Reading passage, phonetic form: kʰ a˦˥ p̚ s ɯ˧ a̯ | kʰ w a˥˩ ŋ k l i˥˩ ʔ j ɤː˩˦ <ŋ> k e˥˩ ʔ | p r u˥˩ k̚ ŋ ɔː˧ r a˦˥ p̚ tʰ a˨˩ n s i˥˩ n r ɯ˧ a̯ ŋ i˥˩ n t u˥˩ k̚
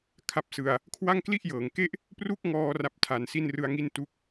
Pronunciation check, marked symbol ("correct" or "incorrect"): correct